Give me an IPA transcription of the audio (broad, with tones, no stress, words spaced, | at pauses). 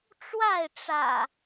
ʈ͡ʂwa˥˨ɪ̯ʈ͡ʂä̰˨˩